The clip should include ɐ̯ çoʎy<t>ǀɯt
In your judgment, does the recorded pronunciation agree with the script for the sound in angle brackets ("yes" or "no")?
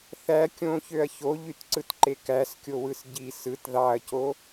yes